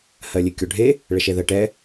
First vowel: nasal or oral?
oral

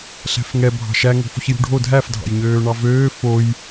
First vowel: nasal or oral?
oral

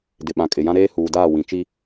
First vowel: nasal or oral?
oral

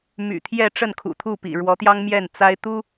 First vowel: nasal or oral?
oral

